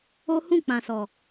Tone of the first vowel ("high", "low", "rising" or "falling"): high